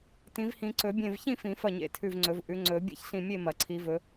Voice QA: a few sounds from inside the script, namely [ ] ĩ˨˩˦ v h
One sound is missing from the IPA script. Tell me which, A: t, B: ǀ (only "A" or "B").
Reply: A